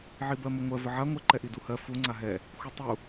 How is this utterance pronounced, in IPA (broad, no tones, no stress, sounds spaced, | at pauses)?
ʕ i b ɜ m ə ŋʷ ɜ v ə ʕ a ŋʷ ə ǃ ɛ ʔ i d u h ɜ f u ŋ͡ǀ a ɦ ɛ | xʷ i tˤ u